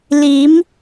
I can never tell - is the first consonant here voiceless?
no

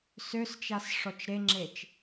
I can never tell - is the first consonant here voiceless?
yes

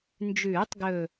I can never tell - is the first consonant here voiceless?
no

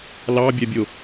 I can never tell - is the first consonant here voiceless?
no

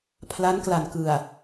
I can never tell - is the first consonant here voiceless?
yes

